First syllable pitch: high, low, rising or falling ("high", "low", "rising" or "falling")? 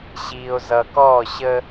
low